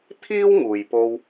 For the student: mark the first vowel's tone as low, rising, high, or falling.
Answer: high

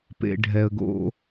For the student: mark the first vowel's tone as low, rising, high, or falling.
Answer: low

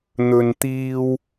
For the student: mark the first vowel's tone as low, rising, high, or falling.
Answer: low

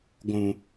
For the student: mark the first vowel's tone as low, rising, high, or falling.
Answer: low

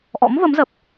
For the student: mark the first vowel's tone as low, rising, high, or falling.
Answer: rising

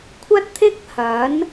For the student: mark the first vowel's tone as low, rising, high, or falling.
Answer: high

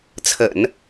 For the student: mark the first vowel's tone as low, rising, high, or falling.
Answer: low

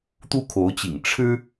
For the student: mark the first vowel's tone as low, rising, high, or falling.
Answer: high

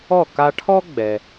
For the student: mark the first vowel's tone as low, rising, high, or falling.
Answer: falling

